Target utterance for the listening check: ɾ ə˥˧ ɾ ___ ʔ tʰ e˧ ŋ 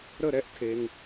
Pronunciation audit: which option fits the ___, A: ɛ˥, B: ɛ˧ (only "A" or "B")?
A